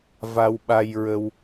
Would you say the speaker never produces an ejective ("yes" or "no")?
yes